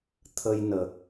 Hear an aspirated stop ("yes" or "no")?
yes